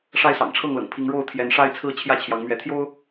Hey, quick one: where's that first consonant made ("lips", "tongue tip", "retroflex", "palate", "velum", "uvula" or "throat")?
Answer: retroflex